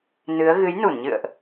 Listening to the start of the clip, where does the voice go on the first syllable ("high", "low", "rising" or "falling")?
rising